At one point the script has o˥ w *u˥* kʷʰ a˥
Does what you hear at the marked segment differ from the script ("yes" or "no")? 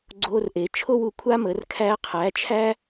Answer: yes